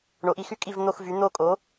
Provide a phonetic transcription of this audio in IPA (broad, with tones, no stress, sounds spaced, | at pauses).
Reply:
ɳ o˩˥ ʔ i˩˧ x y˦˥ kʼ i˦˨ v n̪ o˦˨ x v y˩˥ n̪ o˦˨ kʼ o˩˥